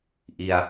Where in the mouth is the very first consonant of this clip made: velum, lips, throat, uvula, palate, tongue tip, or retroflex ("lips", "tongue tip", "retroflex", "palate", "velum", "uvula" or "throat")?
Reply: throat